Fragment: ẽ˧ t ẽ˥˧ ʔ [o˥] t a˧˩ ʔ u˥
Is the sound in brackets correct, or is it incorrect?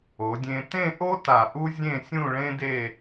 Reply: correct